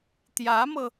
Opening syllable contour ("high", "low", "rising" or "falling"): rising